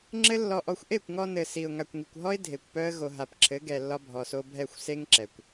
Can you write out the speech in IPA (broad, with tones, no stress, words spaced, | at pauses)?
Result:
ŋ͡ǁɘ˦lːɔ˧ʔɔ˧xʷ ʔe˦˨kʷŋɔ˧nɘ˨ si˨ʊ̯ ŋa˨kʷŋi˨kʷɦɔ˦ɪ̯ dʱe˨kʷpœ˦ə̯ ɣo˨ɦa˨p ǁʰɘ˨˦ ɡɛ˨lːɒ˧ bʱɔ˨so˧ bʱɛ˦˨xʷse˦ŋǁɛ˨kʷ